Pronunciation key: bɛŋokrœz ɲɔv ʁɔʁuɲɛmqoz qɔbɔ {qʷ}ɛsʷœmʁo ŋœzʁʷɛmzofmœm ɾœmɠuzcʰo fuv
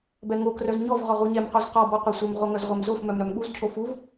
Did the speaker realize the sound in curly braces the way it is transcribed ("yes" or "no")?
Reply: yes